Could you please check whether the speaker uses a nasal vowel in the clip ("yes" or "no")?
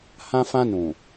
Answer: yes